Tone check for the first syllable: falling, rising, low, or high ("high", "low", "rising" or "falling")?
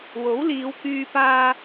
rising